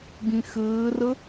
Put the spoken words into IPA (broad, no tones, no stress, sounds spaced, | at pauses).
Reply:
ɡ ĩ x ɘː r ə